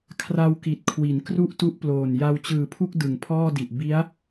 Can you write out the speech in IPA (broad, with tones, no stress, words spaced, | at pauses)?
kʰra˧w ki˨˩t̚kʰwi˩˦n kru˥˩ʔtu˦˥ʔploː˨˩n ja˧wt͡ɕɯː˨˩pʰu˥˩k̚ dɯ˨˩ŋpʰɔː˥˩di˨˩ʔ bi˦˥a̯